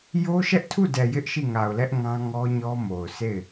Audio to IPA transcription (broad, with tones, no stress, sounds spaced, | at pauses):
j o˦ ʃ ɛ˦ ʔ tʰ u˦˨ d ɛ˨ j ɪ˦ ʔ ʃ i˦˨ ŋ a˨ ʊ̯ l ɛ˦ ʔ ŋ ã˦ ŋ ɔ˦ ɲ ɔ˦ m o˨ ʊ̯ sʰ e˦˨ ɪ̯